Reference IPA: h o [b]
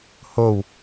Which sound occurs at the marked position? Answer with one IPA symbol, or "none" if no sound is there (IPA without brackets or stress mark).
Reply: w